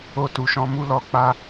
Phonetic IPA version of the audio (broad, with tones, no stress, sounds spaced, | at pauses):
o˧ t u˨ ʃ ɔ̃˧ m u˧ l ɔ˨ k͡p a˧